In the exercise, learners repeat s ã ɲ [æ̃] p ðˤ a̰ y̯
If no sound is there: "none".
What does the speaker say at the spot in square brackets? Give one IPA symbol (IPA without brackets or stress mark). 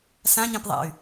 ɛ̃